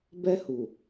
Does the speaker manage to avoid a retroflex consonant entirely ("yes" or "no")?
yes